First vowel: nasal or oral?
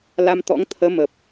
oral